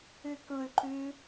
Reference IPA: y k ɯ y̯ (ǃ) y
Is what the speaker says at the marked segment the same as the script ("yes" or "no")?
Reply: yes